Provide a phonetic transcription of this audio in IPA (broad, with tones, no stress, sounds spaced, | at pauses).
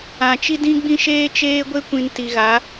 ã˨ t͡ʃ i˦ d ĩ˦ ɡ͡b ĩ˦ ʃ eː˦ t͡ʃ eː˦ ɡʷ e˦ kʷ ĩ˨ n t i˨ ɣ a˨˦